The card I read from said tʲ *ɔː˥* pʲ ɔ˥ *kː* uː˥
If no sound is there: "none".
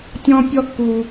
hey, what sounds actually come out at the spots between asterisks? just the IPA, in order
ɔ̃ː˥, kː

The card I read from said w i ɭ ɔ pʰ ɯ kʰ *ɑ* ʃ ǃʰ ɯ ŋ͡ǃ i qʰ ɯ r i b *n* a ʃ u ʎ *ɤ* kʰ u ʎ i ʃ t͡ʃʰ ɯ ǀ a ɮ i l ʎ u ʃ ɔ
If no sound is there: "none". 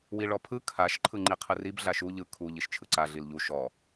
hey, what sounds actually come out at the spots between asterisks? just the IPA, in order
a, ɮ, ɯ

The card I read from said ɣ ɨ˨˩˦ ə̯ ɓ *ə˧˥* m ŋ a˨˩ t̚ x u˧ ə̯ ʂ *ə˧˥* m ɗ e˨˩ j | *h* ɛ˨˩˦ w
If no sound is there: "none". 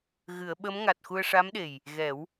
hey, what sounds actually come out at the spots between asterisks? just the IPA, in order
ə˧˥, a˧˥, ɣ

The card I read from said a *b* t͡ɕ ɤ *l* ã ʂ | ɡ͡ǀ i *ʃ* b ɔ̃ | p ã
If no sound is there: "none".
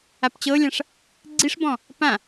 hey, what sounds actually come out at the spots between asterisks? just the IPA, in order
p, lʲ, ʂ

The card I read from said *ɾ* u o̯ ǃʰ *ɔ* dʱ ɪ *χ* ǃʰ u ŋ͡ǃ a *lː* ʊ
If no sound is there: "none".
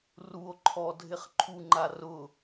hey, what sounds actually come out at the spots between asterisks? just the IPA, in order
r, ɔ, χ, r

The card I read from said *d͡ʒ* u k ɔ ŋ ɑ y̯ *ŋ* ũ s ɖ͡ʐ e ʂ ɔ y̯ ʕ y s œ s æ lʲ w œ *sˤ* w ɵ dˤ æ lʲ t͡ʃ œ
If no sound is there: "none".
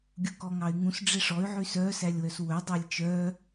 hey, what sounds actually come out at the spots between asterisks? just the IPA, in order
ɡʲ, ŋ, s

